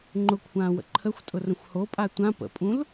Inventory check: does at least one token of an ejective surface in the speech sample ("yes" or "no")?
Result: yes